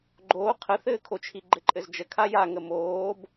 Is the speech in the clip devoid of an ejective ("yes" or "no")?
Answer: no